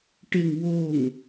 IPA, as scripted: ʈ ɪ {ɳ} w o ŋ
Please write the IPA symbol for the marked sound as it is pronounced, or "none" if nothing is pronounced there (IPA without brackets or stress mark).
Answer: ŋ